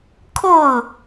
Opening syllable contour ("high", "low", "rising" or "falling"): falling